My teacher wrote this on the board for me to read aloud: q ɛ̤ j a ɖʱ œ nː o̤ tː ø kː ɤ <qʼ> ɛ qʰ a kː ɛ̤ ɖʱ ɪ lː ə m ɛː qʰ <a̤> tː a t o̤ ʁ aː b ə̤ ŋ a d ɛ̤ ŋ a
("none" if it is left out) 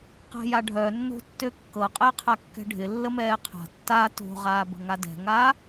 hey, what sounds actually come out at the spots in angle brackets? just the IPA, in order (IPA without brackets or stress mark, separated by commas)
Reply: qʼ, a̤